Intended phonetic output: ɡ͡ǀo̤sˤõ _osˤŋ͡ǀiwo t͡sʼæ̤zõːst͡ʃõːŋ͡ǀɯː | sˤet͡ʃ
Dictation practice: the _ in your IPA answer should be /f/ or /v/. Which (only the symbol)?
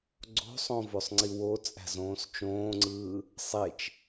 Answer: v